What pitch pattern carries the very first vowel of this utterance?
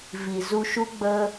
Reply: low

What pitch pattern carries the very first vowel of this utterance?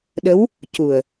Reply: rising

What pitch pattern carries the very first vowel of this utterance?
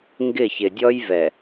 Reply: falling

